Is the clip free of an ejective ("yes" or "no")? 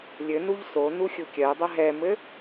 yes